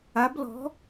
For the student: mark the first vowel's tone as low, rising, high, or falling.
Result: rising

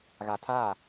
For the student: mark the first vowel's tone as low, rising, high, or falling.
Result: low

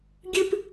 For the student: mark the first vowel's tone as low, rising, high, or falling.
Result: high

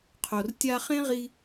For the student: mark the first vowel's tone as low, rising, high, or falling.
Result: low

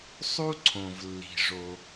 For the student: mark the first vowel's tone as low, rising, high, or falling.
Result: high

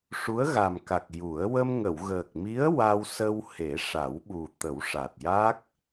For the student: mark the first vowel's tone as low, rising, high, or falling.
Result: rising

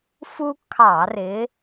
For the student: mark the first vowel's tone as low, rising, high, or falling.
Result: high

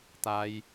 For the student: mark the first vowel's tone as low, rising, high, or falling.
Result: high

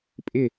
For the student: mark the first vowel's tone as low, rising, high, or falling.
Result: falling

